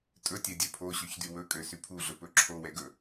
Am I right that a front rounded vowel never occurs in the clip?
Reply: no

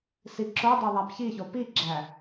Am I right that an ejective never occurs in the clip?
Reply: yes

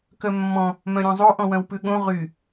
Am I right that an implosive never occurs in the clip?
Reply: no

